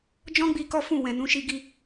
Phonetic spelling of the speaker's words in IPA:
d͡ʒ ɔ̃˦ ɡ͡b i˧ k ɔ˦ f ũ˦˨ w ɛ̃˨ n ũ˨˦ ʃ i˧ ɡ i˧

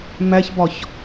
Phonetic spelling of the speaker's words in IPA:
m æ ç b ɒ ç

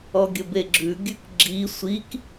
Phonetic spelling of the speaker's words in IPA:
ɔ ɡʲ ə b e ɡ͡ǁ ʉ ɡʲ ʉ k ɡ͡ǁ i sʷ i k

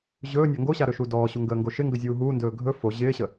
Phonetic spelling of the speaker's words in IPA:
ʑ ɵː nʲ a ŋ ɡ o ɕ a ɾ ɵ ʃ u d ɔː ɕ u ŋ ɡ əː ŋ ɡ o ʃ ɪ ŋ ɡ ə zʲ uː ɦ uː n d ɵː ɡʱ ɵ f o ʑ ɪː ɕ ə

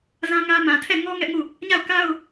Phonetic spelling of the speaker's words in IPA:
z ã˦ ŋ ä˦ m ã˨ tʰ ɛ˦˨ ŋ ɔ˦ ŋ ɛ˦ ʔ ŋ u˦˨ | ɲ a˦˨ ʊ̯ k a˦ ʊ̯

